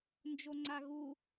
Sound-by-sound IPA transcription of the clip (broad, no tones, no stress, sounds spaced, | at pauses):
n d͡ʒ o ŋ͡ǀ a ɣ u